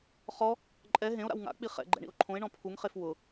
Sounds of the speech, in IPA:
χɔ | ǃʼɛ ɦẽo̯ɾa̰w ŋa̰k͡pi χɛ̰ ɡ͡ǃɛ̰ɳḭo̯ǃʰõe̯ɳɔ̃ pʰuŋχef wʊ

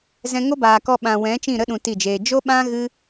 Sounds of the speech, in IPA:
zɛ̃˧ŋo˦baː˨kɔ˧ ɓã˨wɛ̃˨˦t͡ʃĩ˦˨ɾə˦ ɗũ˧ti˦˨d͡ʒeː˧ d͡ʒo˦ɓã˦ ɣɨ˦

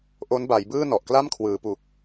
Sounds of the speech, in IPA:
ʔo˦˥nba˩˦jbɯː˥˩ nɔ˨˩ʔkla˥˩mkʰwɯː˩˦pu˨˩k̚

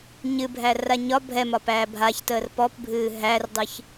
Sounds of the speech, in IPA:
ɲɨbʱæra ɲɒ bʱɛmɒpæː bʱaçtəːr pɔpbʱɨː ɦærdˤɨç

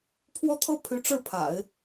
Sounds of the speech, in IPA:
pʰwɔ˥t̪ʰɤ˥pʰy˧˥ʈ͡ʂɻ̩˥˩ pʰa̰˨˩˦ɪ̯

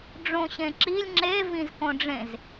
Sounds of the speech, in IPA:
ɖ͡ʐõɕẽǁilʲ ŋ͡ǁe vĩzkõɖ͡ʐẽz

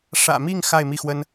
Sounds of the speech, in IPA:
ʂä̰˨˩mi˥˧ŋ xa˥˧ɪ̯mi˥˩xwə˥n

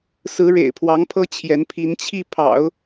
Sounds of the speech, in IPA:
sɹ̩˧˥ ɻḛ˨˩ɪ̯pʰwɑ˧˥ŋpʰɤ˥ t͡ɕʰjɛ˧˥npʰi˧˥nt͡ɕʰi˥˩ pʰɑ̰˨˩˦ʊ̯

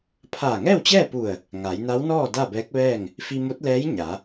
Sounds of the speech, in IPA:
pʰaː˧˩ŋɛː˥˨wt͡ɕɛː˥˨pu˧˩ə̯ | ŋa˩˧jna˧˥wnɔː˥˨ da˥˨bɛː˧˥k̚ʋɛː˥˨ŋ | fi˧mo˧˥t̚lɛː˧˥j ɲa˩˧

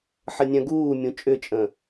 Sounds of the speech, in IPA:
ħənʲœ̃ɡuːmʲũ t͡ʃʼʏt͡ʃʼə̃

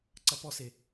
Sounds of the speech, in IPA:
ǀɐpɔse

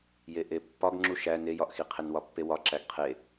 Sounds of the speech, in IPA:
jeʔepːɒɡ ŋ͡ǁuʃæ nejɒʔxiqʰen wɒpːewɒ ǁæɡqʰe

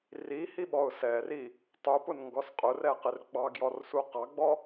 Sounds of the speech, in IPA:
rihiɓɔʊ̯ sɛri | tˤupʊnŋɡɔs qʼʊrɛqɪr ɡ͡bɑɡjɔrsu qɑɡ͡bɔ

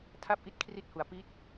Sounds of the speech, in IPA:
tʰa˥˩p̚ʔi˥˩t̚kʰri˥˩t̚hu˩˦a̯ pi˦˥t̚

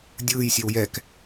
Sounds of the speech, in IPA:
dʲɯːjsʲew jɛk

